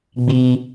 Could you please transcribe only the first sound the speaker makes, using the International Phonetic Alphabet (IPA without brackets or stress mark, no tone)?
ɡ͡b